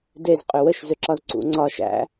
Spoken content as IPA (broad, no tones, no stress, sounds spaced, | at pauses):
d e z qʼ ʏ w ə ʃ z ʏ ǁ ɒ z ǀ ṵ ŋ͡ǀ ɒ ʃ æ̰